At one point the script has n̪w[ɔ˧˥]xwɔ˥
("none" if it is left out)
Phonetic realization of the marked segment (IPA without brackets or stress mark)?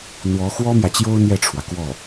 ɔ˧˥